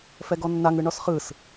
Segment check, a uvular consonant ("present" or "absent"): present